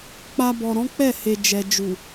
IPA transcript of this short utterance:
k͡p a˧ b ɔ˨ ɾ ɔ̃˨˦ k͡p ɛ˦˨ h e˨ d͡ʒ ɛ˨ d͡ʒ u˨

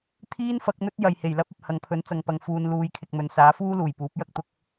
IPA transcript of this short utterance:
t̪ʰ iː˥ n f ɐ˨˥ k̚ n̪ ɵ˥ t̚ j ɐ˨ j h e˨˩ j l ɐ˥ p̚ ɐ˨ p̚ h ɐ˨ ŋ pʰ ɵ˨˥ n t͡s ɐ˨ ŋ p ɐ˨ ŋ f uː˨ n l uː˨˧ j kʰ ɪ˨ k̚ m ɵ˨ n s aː˨˥ f uː˥ l uː˨˩ j p uː˨˥ p̚ j ɐ˥ k̚ t̪ ʊ˧ k̚

